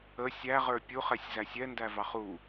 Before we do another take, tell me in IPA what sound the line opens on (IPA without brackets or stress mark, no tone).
ə